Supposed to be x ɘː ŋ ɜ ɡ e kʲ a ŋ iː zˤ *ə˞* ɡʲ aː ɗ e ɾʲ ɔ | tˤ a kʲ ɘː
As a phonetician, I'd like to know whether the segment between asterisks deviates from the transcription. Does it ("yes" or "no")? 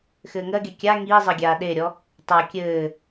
yes